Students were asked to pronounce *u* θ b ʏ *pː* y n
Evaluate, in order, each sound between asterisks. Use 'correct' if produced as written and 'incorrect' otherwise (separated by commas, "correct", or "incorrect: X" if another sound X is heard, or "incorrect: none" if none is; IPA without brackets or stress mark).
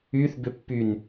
incorrect: y, correct